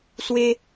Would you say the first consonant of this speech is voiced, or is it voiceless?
voiceless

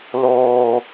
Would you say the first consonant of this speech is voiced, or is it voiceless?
voiced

